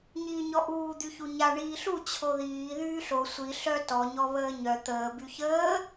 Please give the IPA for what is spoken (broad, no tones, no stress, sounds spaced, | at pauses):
ɲ iː ɲ ɔ ʔ uː d̪ y ç u ɲ a ɳ iː ɬ u t͡ɕʰ o ð iː ð yː ɬ o sʷ i ɬ œ t ɔ ɲ ɔ β əː ɲ œ t̪ əː b y ç əː